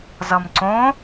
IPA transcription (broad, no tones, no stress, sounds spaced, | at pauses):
z ʌ m ǀ õ